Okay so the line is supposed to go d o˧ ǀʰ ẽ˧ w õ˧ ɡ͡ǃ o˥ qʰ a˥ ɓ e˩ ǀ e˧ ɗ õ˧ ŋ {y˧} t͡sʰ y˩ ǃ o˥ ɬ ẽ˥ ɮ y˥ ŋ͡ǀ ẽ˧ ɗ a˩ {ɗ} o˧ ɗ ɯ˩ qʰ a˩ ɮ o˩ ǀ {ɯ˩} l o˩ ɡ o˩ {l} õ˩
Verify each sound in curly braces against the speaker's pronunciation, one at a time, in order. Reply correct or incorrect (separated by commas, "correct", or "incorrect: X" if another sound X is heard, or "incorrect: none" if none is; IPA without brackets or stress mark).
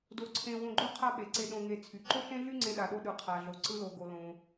incorrect: e˧, correct, incorrect: ɯ˧, correct